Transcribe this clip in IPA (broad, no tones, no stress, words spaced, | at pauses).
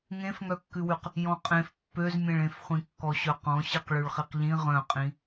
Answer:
ŋẽfŋœkːʉwʉq | jɔ̃qʼẽf pːøzmʲẽɭẽf χʷĩkːɔɕœqɔ̃ ɕiqɭʉɭχiqʎĩ ʁœ̃qʼĩ